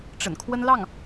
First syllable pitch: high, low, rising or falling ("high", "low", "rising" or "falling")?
low